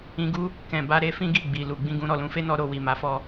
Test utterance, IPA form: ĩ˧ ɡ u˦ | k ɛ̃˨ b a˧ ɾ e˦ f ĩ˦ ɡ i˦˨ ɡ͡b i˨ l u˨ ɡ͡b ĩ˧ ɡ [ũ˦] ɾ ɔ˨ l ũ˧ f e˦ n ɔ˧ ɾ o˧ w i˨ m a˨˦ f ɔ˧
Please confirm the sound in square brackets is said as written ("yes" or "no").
no